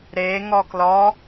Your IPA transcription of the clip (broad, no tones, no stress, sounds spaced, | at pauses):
ɾ e ŋ ɔ k l ɔ